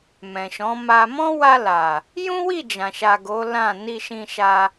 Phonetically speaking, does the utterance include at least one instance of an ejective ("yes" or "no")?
no